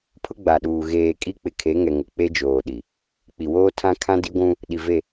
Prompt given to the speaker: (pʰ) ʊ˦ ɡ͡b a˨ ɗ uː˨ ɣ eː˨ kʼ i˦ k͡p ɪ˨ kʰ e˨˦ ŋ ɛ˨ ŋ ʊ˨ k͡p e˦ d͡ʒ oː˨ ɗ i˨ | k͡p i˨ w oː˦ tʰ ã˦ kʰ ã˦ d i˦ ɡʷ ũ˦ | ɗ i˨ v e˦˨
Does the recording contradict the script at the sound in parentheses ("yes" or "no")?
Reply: no